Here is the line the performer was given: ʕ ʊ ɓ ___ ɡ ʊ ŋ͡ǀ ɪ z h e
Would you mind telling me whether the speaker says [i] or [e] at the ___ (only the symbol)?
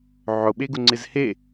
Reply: e